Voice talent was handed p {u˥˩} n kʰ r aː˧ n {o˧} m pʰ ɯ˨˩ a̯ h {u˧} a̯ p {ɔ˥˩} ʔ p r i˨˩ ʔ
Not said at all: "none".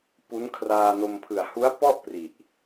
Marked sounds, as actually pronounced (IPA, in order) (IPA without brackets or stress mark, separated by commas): u˦˥, o˧, u˦˥, ɔ˥˩